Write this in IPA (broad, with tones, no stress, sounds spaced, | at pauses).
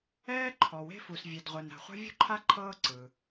ɛː˥ ǃʰ ɔ˩ w e̤˥ f u˩ s vʲ e˩ d ʁʷ ɛ˩ n ɾ a̤˩ χʷ a̤˥ vʲ ṳ˥ ǃʰ a˥ ǃʰ ɤː˥ ǀ ɯ˩